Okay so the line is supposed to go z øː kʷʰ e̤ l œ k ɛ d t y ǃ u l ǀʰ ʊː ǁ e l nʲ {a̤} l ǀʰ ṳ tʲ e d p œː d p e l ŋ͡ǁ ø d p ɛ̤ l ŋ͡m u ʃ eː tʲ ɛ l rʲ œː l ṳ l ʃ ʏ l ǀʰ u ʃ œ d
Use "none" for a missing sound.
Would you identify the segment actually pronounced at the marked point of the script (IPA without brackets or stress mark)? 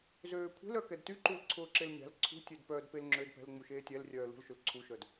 a̤